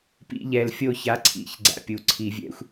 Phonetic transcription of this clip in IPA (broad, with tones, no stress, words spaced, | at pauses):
pḭ˧˩˧ʎɛ˨˩l fʲo˦˨ça˨˥ǀʰḭ˨˩ç ɡ͡ǀa̰˧˩˧pʲu˨˩ ǀʰi˧˩˧vʲɛ̰˨˥xʷ